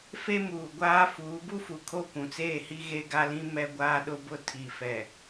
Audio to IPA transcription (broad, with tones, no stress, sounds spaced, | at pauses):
f e˦ m uː˨ ɡʷ aː˦ f uː˨˦ b u˦ f u˨ kʰ o˦˨ kʷ ũ˨ t͡s eː˦˨ h i˦ ɣ e˦ ɡ a˦ l ĩ˦ m ɛ˦ ɡʷ aː˦ ɗ ʊ˦ b ʊ˦ tʰ i˨ f ɛ˨